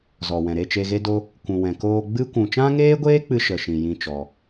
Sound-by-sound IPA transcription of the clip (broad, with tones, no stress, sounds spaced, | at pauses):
z ɔ˨ w ɛ̃˨ ɾ e˦˨ t͡ʃ e˧ ɣ e˦ d o˦ | kʷ ũ˨ w ɛ̃˨ k oː˧ ɡ͡b ɨ˦ kʷ ũ˨ t͡ʃ ã˦ ŋ eː˦ ɡʷ eː˦ k͡p ɨ˦ ʃ ə˨ ʃ ĩ˨ j ĩ˦ t͡ʃ ɔ˧